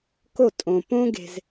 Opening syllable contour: falling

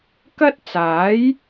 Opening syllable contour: high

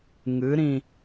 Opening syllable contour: rising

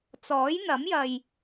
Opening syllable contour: rising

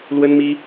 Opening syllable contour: high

